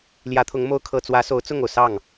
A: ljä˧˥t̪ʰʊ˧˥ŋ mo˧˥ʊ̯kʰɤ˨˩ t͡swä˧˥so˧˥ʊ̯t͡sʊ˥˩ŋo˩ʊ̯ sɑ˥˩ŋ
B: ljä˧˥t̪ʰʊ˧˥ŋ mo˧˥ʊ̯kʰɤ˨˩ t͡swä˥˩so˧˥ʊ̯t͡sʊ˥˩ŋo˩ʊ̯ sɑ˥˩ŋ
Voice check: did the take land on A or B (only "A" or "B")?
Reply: A